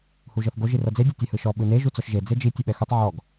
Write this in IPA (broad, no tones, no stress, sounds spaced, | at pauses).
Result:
h u ʒ ɤ θ ɡ o ʒ i r ɤ d͡z e dʲ ɔ tʲ e h ɯ ʃ ɔ ɓ ɯ n e ʒ u t͡s ɔ ʃ ʒ e d͡z e d͡ʒ i tʲ u ɓ ɛ x u tˤ ʕ ɔ ɡ